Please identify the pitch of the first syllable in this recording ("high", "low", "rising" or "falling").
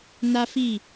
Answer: high